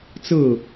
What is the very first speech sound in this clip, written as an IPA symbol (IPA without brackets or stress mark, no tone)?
t͡s